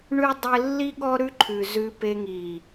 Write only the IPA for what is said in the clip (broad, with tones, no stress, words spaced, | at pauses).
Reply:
ɳʉ˦dˤe˦ lːi˦ɠɔ˦ɾʉ˦ǃʰʉ˨ zʉ˧pe˧ŋi˨